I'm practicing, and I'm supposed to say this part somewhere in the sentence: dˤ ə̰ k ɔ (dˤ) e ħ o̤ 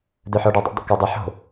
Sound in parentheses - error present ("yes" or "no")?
no